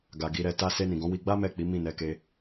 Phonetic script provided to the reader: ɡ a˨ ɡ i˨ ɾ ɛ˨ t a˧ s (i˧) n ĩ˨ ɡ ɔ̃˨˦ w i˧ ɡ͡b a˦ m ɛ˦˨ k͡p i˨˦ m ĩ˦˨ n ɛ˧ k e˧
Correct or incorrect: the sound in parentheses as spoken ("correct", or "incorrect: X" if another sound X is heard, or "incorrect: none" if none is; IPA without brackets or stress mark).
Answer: incorrect: e˧